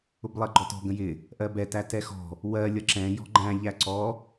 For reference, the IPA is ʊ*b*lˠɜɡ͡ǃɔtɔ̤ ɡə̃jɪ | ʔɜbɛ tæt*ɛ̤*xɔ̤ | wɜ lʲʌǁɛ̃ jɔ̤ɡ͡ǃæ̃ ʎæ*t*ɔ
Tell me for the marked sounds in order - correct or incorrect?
correct, incorrect: ɛ, incorrect: ǀ

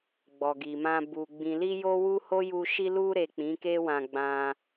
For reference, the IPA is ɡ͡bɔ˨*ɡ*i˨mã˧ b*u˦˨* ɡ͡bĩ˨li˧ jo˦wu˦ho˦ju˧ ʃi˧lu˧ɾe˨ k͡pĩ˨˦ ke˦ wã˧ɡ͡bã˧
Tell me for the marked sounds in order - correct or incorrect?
correct, incorrect: u˨

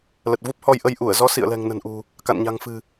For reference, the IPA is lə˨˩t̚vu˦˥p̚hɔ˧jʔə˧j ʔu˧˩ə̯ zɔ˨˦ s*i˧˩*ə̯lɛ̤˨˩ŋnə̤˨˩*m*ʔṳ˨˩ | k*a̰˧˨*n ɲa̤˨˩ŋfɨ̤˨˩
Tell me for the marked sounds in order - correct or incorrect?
incorrect: ḭ˧˨, incorrect: n, correct

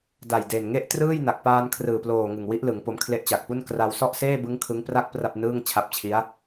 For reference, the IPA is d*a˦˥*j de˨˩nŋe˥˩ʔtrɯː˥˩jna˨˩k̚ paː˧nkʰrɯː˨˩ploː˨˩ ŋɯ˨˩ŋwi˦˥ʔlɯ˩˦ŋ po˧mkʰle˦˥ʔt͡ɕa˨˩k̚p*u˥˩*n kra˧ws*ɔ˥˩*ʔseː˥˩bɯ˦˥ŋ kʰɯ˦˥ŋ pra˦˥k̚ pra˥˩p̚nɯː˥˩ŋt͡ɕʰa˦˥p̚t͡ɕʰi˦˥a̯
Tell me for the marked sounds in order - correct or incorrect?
incorrect: a˨˩, correct, correct

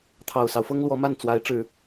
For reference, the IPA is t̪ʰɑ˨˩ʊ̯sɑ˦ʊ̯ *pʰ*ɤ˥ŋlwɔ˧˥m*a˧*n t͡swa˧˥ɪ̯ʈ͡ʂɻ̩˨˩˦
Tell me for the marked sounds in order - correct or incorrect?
incorrect: f, incorrect: a˥˩

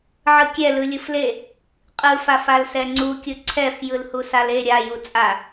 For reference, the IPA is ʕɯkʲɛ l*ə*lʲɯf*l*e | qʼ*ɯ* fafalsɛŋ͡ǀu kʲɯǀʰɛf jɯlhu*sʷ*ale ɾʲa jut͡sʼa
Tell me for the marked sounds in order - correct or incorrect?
incorrect: ɯ, correct, correct, incorrect: s

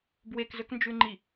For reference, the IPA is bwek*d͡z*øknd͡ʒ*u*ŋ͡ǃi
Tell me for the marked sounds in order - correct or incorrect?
incorrect: z, incorrect: ʉ

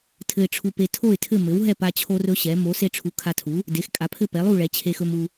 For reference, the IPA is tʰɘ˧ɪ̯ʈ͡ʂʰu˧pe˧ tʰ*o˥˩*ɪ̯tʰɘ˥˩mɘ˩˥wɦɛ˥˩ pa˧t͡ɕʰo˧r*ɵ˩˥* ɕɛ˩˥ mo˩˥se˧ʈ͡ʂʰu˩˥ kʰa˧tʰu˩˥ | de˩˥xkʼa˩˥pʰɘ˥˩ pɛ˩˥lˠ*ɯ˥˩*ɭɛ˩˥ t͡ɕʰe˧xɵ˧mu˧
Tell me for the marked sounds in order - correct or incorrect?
correct, incorrect: ɵ˧, incorrect: u˥˩

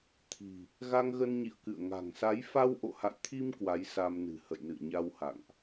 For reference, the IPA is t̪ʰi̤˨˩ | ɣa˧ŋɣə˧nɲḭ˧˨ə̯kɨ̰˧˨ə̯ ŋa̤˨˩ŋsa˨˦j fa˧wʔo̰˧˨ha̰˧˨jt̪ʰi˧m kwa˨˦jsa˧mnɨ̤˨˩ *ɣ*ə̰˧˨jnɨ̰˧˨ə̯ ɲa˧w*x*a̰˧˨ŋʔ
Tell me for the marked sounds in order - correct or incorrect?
incorrect: h, incorrect: h

